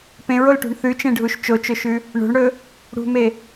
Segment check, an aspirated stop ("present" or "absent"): absent